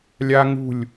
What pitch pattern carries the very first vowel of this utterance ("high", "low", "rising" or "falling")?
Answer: high